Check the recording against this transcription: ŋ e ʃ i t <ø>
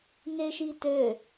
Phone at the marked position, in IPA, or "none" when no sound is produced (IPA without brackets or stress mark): ø